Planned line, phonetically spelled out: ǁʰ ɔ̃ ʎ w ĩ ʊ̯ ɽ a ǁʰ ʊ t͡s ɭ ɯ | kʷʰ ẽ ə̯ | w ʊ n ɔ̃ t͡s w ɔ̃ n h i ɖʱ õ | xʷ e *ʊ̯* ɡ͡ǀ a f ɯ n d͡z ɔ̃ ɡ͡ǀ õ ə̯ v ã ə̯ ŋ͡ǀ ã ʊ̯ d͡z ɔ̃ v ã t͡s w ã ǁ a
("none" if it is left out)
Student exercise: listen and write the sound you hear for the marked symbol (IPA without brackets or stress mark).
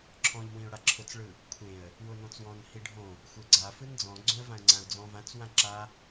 none